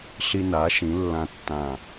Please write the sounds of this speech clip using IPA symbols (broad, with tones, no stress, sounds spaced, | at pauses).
ɬ i˦ n a˩˥ ʃ ĩ˩˥ lː ã˦ tː ã˧˩